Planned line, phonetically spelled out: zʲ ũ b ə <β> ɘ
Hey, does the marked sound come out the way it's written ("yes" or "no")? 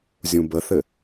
no